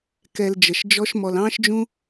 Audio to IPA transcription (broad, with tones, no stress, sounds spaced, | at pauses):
k ɛ˧ l d͡ʒ ə˨ ʃ d͡ʒ ɔ˦ ʃ m ɔ˧ l ɑ̃ː˦ ʃ d͡ʒ ũ˦